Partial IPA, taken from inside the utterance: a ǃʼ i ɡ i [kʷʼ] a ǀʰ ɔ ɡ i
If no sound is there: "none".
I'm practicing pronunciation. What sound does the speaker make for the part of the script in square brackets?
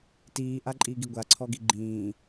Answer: ɡʷ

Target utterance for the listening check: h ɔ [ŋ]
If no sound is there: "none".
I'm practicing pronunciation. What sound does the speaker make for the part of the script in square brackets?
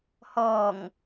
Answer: ŋ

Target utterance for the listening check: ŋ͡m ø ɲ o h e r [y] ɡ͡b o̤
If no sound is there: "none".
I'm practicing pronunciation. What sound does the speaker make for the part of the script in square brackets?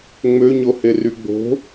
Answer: y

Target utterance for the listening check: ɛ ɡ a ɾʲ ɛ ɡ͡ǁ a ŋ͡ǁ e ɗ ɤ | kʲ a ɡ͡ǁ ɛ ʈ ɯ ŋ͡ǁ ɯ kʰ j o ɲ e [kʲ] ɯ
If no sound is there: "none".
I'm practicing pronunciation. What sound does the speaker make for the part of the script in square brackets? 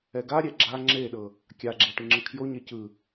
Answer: c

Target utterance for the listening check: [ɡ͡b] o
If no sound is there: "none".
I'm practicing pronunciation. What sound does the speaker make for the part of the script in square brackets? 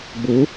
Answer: ɡ͡b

